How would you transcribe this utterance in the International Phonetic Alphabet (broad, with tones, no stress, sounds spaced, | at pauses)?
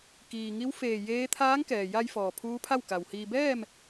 k iː˩ ŋ i˧˥ w f eː˧˩ j eː˧˥ t̪ʰ aː˧˥ ŋ k ɛː˩ j a˧ j f ɔː˩ pʰ uː˧˥ pʰ a˥˨ w k a˩ w h iː˧ b ɛː˥˨ m